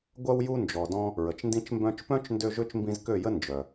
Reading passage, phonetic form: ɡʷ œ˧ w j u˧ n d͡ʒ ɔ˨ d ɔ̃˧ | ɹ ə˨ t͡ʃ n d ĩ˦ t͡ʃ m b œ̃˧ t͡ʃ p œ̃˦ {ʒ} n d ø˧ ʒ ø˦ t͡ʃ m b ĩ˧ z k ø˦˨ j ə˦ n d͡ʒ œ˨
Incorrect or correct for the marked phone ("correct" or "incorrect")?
incorrect